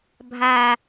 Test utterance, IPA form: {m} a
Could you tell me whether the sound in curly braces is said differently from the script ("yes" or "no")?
yes